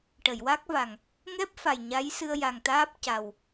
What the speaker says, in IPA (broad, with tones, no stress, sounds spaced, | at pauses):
ʈ ə˨˩˨ j w a˦˥ k̚ v a˨˩ ŋ | ŋ ɛ˦˥ p̚ f a˨˩ j ɲ a˧˥ j s ɨ˧ ə̯ j a˨˩ ŋ t̪ aː˦˥ p̚ c a˨˩ w